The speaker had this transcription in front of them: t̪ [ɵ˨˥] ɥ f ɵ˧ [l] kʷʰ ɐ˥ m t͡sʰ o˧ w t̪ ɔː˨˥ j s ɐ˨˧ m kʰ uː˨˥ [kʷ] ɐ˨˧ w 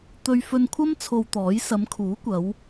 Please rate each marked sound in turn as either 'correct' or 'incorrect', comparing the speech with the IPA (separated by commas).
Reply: incorrect, incorrect, correct